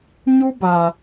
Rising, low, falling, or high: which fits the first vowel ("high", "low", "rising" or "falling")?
high